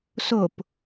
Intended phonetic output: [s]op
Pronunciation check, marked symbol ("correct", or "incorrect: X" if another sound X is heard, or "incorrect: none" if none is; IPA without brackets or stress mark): correct